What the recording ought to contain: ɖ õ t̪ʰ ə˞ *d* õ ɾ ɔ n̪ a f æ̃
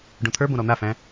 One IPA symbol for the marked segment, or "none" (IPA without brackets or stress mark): b